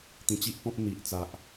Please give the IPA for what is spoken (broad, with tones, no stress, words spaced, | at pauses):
t̪ĩ˧t͡ɕi˦ʔpɔ̃˦p̚ n̪i˨ʔt͡sa˨ʔ